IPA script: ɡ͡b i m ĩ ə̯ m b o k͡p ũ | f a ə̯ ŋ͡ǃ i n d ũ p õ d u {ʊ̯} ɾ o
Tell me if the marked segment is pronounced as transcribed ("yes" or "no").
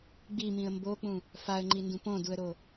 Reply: no